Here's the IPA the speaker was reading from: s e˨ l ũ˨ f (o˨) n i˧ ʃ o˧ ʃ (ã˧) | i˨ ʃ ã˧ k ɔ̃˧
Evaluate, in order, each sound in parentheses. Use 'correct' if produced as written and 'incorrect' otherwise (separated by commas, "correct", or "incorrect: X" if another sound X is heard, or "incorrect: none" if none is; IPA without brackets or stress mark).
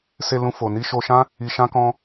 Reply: correct, incorrect: ã˦